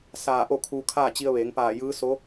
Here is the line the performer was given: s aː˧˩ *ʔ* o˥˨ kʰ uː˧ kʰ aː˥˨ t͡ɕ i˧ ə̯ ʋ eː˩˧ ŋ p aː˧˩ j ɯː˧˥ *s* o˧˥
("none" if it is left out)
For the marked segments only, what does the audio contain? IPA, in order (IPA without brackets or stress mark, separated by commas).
ʔ, s